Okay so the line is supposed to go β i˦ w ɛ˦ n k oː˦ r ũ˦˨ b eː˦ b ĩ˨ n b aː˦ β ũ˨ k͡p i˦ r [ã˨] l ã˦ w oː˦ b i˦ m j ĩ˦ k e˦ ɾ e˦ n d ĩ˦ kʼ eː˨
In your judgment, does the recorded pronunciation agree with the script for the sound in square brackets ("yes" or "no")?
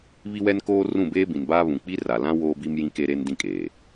no